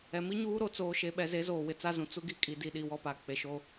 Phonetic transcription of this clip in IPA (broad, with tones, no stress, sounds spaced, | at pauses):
ɛ˨ m i˦ ɲ uː˦ ɾ o˦ t͡s oː˨ ʃ e˨ ɓ ɛ˨ z e˨˦ z oː˨ w ɪ˨ t͡s a˦ z ũ˨ t͡s u˦ ɡ i˦ kʼ i˨ d i˨ ɗ i˨ w ɔ˦ p a˨ k͡p e˨ ʃ o˦